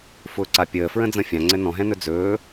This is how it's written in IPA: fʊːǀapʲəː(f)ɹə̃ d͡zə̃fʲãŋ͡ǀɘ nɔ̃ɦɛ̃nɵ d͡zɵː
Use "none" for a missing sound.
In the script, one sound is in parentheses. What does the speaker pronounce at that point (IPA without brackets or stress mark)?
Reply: f